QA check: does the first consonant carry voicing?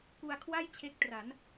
no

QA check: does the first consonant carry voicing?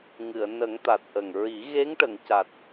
yes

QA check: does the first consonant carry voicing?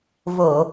yes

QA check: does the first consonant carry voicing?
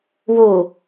yes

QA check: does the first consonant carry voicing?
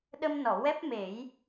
yes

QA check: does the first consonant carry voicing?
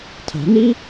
no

